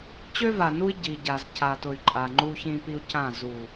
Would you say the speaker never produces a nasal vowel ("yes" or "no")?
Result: no